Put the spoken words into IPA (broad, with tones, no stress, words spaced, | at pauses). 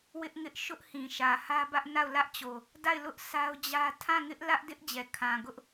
wɪ˦ʔŋɪ˦ʔ ʃʊ˦ʔhĩ˨ʃä˨ hä˦bä˦ʔna˦˨ʊ̯ lä˦ʔt͡ɕo˨ | da˦˨ɪ̯lʊ˦ʔ sa˦ʊ̯d͡ʑä˦ tʰã˦˨ŋɪ˦ʔlä˦ʔdɪ˦ʔ d͡ʑɛ˨kʰã˨ɡʊ˦ʔ